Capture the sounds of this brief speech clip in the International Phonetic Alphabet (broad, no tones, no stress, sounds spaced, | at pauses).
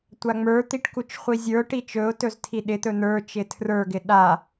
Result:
tʷ a ŋ͡m ə˞ t̪ i ʈ k u t͡ʃ χʷ i zʲ ə˞ ʊ̯ ʈ i t͡ʃ ɵ ʊ̯ t ɵ z tʰ i ɗ ɪ t̪ ɵ n̪ ə˞ t͡ʃ ɪ tʰ r ə˞ ɡ ɪ ɗ a